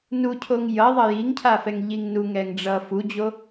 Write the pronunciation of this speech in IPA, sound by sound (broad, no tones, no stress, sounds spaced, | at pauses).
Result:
n u cʰ o ŋ j ʌ ðˤ ʌ j i ŋ cʰ a f ɛ ŋ ʎ i ŋ n u ŋ ɛ ŋ ɖ͡ʐ ʌ f u d͡ʑ o